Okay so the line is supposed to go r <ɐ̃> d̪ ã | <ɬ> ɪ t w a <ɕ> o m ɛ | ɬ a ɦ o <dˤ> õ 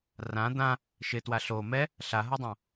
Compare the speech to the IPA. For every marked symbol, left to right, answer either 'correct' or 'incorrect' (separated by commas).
incorrect, incorrect, incorrect, correct